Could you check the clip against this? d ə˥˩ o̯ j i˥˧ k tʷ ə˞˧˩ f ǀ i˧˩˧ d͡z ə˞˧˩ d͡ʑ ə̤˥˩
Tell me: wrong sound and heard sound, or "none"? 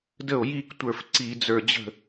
none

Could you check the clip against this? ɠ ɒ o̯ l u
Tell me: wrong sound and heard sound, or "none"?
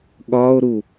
l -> ɾ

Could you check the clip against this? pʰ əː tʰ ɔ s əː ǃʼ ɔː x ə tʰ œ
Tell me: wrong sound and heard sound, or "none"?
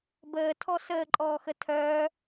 pʰ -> b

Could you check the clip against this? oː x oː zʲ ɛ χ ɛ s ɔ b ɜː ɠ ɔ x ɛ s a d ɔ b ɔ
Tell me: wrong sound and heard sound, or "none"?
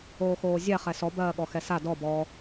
none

